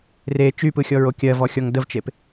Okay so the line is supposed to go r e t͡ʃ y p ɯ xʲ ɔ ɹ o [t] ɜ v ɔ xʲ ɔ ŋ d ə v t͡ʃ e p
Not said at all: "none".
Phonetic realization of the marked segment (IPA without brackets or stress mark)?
kʲ